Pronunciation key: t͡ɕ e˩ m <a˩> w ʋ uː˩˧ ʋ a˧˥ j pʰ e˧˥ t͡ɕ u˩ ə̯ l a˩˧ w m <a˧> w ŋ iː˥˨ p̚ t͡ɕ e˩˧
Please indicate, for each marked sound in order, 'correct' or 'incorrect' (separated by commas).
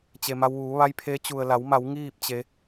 incorrect, incorrect